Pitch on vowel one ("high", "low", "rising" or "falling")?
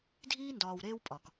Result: high